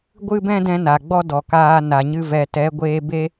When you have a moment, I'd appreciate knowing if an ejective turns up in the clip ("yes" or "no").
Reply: no